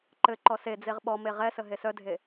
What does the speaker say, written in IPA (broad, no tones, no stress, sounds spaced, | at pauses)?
ǃ ɘ ǃ ɔ s e d͡z e ʁ ɓ ɔ m e ʁ ɛ s ə ɦ e s œ dʱ e